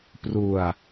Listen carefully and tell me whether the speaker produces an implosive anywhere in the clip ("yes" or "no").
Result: no